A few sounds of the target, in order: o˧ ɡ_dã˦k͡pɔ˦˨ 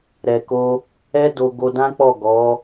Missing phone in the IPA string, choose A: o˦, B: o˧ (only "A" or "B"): B